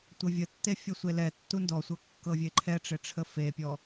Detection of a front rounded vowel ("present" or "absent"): absent